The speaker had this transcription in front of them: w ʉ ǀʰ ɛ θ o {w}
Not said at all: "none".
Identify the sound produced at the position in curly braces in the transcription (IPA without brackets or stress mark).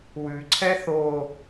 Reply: none